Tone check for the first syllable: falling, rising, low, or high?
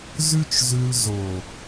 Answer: high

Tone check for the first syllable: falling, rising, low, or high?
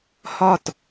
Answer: falling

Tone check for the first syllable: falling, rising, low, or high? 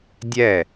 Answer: falling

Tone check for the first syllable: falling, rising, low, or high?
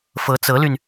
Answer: rising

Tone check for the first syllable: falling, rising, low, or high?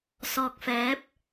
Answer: low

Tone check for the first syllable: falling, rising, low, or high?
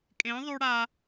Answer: rising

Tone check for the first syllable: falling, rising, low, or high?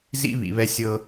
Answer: high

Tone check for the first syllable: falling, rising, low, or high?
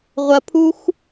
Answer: low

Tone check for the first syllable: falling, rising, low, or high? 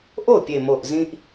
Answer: falling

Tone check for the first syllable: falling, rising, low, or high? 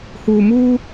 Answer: low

